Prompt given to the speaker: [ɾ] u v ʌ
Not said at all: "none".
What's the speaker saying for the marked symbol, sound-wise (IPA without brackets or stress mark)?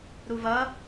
ɾ